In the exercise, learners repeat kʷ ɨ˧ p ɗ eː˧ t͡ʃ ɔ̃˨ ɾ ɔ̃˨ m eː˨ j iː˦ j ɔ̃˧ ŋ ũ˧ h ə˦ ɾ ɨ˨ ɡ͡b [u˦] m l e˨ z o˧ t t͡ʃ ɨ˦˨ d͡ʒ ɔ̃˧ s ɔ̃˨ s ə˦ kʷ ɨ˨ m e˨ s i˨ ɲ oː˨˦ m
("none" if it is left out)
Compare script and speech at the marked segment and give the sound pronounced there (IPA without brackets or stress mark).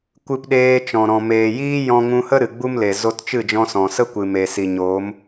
u˦